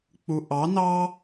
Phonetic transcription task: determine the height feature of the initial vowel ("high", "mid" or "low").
high